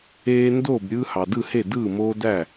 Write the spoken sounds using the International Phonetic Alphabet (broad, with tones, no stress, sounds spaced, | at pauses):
eː˦ n d oː˥˨ b ɾʲ ɯː˦ h ɑ˨ d ɯ˥˨ h e˥˨ d ɯː˥˨ m oː˦ d æ˥˨